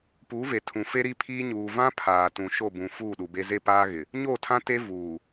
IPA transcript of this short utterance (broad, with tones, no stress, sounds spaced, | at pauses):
p uː˨˦ v e˨ tʰ ũ˨ f e˦ ɾ i˦ pʰ iː˦ ɲ uː˨ v ã˦ pʰ aː˨ t ũ˨ ʃ o˦˨ b ũ˨ f uː˦˨ ɗ u˨ b e˦ z e˦ p aː˦ ɣ ɪ˨ | ɲ oː˦˨ tʰ ã˦ t e˦ v uː˨